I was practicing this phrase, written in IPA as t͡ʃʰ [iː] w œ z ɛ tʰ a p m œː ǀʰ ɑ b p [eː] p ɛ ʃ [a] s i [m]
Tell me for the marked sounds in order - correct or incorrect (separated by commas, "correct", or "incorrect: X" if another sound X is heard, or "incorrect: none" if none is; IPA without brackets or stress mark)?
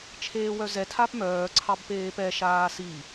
incorrect: eː, correct, incorrect: aː, incorrect: none